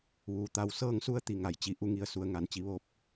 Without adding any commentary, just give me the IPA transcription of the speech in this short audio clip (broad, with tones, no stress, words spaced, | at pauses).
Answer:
ʋuː˩˧t̪a˧w sɤː˥˨ŋsu˥˨ə̯t̪i˧˩ŋa˩j t͡ɕi˩ʔu˩˧ŋi˩ə̯su˩ə̯ ŋa˩˧nt͡ɕi˩˧ ʋo˧p̚